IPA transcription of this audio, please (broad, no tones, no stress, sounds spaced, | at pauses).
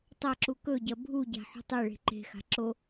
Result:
tˤ ɐ ǁ u k ɵ ɟ ɐ bʱ u ɟ a̤ ħ ṳ tˤ e ɭ e̤ ǃ e̤ x a̤ ǁ o